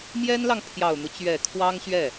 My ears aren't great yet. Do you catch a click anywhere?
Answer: no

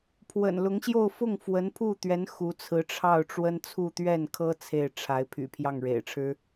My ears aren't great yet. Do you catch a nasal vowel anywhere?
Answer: no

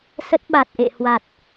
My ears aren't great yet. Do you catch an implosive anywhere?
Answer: yes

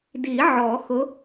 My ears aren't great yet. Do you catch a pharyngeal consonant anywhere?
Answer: yes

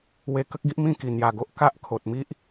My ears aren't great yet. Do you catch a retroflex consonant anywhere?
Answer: no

